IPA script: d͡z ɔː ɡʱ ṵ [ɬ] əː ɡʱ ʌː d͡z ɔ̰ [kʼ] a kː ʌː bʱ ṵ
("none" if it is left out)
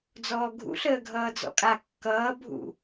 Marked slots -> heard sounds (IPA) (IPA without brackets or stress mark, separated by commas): ɬ, kʼ